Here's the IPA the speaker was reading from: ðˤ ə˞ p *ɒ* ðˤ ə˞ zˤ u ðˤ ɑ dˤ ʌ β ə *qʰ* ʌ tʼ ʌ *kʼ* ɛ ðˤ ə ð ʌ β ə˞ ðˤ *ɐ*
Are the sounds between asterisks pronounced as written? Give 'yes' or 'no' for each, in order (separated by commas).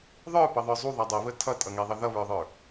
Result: no, no, no, no